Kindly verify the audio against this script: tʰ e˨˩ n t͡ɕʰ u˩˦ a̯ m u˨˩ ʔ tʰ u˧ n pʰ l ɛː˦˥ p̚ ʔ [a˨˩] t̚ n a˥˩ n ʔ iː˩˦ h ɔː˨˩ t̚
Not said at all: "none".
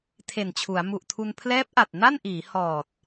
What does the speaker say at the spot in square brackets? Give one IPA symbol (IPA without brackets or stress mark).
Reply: a˨˩